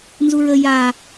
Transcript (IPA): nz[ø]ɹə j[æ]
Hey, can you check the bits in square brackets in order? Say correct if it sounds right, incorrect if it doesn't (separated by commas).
incorrect, incorrect